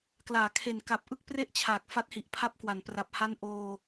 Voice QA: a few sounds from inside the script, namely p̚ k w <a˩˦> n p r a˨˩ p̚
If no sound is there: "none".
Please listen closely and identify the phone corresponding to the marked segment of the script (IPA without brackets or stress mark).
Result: a˩˦